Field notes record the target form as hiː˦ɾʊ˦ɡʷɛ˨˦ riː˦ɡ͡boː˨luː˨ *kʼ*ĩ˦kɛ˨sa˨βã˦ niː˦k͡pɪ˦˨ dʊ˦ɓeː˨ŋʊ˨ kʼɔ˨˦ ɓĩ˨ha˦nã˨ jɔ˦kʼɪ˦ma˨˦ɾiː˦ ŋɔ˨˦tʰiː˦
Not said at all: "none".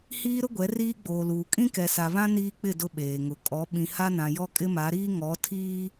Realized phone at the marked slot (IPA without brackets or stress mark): kʼ